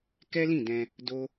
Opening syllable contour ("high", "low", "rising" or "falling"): high